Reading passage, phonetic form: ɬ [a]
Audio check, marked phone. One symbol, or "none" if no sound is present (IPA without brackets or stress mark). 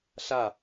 a